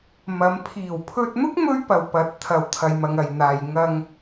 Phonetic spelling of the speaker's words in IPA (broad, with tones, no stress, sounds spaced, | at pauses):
m ɐ˨˧ m pʰ iː˨˩ w pʰ ɵ˧ t̚ n̪ ʊ˥ k̚ m ɵ˥ ɥ p ɐ˨ w p ɐ˨˥ t̚ t̪ʰ ɐ˨ w t̪ʰ ɐ˨ j m ɐ˨ ŋ ɐ˨ j n̪ aː˧ j ŋ ɐ˧ ŋ